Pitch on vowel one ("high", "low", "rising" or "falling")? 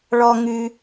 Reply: high